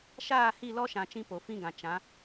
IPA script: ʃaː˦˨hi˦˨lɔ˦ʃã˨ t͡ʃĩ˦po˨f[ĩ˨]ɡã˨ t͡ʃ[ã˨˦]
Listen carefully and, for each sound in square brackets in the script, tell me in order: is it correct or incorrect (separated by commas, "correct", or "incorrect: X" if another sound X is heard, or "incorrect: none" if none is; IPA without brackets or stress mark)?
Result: incorrect: ĩ˦, correct